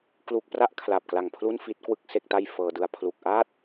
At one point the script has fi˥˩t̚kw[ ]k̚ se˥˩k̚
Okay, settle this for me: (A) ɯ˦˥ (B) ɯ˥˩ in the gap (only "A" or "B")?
B